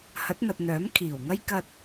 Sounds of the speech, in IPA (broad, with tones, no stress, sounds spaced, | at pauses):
h ɐ˨˥ t̚ n̪ ɐ˨ t̚ n̪ œː˨˥ m kʰ iː˨˩ w ŋ ɐ˥ j k ɐ˧ t̚